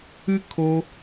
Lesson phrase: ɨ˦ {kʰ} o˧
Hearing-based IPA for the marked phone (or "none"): kʰ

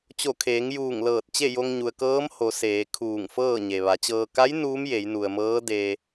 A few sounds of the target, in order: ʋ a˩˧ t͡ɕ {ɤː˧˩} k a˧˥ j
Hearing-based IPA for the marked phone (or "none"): ɤː˧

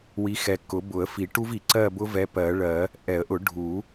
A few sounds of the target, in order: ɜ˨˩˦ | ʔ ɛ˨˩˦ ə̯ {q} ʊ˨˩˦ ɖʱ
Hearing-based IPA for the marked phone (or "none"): ʔ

